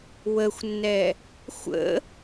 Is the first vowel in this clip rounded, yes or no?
no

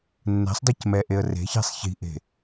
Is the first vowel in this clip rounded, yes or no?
no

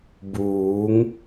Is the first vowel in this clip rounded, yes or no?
yes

